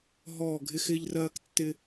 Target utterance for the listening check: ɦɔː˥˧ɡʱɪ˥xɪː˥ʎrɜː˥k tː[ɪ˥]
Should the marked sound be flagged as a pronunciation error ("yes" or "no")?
no